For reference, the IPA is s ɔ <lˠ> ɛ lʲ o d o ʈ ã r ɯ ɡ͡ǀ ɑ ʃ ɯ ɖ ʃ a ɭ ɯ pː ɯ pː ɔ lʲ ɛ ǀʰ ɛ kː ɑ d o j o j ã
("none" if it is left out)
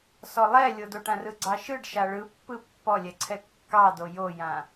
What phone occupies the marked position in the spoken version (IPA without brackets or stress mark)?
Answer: lˠ